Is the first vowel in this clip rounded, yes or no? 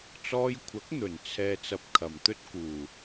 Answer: yes